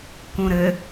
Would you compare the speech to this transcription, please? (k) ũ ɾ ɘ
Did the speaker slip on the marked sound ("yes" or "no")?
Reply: no